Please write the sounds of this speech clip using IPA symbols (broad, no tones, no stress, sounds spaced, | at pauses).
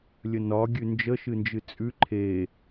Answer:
lʲ ə n ɒ ɡʲ ʉ n d͡ʒ ə ʃ ɨ n d͡ʒ ɨ t͡sʼ ʉ ǃʰ e